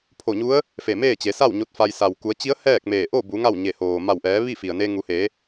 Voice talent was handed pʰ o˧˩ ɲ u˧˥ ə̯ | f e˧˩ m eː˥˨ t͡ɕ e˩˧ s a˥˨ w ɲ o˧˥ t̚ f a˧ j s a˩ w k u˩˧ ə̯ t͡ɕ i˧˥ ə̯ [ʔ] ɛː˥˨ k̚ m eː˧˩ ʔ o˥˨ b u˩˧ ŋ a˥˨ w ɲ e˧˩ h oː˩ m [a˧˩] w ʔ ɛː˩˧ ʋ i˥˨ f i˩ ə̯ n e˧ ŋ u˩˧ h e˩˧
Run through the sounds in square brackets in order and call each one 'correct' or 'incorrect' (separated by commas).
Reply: incorrect, correct